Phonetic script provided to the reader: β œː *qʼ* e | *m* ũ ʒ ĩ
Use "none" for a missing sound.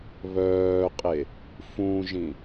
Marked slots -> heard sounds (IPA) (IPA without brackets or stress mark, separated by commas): qʼ, f